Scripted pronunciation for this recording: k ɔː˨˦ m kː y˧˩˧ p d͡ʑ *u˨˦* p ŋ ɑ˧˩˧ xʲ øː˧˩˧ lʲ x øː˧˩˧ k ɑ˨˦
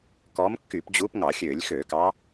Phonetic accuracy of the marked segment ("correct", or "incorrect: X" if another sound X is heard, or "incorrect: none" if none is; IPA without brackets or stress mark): incorrect: uː˨˦